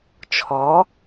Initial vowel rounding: rounded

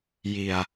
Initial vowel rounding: unrounded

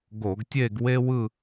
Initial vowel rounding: rounded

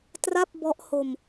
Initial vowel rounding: unrounded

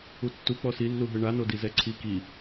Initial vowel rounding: rounded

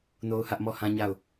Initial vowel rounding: rounded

